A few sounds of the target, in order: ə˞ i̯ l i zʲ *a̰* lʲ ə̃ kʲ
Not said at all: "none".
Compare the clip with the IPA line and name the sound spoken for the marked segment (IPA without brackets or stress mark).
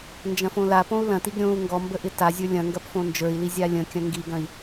a